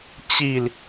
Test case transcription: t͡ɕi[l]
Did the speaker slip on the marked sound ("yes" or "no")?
no